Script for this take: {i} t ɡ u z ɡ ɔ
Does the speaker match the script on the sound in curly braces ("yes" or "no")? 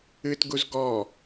no